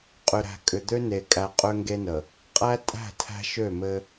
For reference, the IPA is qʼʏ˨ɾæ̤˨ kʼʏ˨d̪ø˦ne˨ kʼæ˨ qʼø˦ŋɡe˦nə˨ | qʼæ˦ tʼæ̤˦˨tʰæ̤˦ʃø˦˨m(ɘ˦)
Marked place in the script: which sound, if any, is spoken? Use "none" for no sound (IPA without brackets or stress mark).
ɘ˦